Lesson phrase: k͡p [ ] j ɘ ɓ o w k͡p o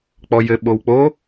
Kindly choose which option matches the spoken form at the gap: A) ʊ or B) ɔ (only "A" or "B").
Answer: B